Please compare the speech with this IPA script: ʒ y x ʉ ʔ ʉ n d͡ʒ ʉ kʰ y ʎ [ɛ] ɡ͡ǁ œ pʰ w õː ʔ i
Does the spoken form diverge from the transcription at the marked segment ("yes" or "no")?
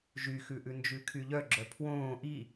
yes